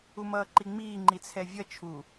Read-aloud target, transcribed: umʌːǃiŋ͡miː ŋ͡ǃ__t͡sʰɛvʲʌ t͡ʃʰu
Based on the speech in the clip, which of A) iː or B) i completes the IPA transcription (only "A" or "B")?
B